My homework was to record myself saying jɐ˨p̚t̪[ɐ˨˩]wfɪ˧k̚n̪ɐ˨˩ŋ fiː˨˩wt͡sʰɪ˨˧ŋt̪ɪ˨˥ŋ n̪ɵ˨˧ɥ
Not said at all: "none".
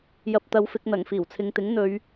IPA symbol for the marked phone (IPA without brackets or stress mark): ɐ˨˧